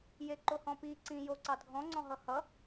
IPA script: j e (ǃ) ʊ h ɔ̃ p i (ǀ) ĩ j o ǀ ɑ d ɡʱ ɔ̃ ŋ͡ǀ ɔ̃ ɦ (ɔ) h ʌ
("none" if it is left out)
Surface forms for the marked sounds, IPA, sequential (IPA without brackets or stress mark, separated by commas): ǃ, ǀ, ʌ